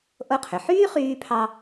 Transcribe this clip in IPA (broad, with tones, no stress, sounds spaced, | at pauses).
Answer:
ʔ o˧ qʰ ʏ˩ ħ yː˥ χ yː˧ pʰ ɑ˧